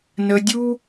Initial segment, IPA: n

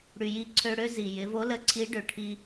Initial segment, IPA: ɽ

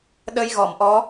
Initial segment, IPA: ɗ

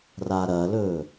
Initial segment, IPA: r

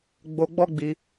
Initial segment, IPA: ɡ͡b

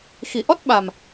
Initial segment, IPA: x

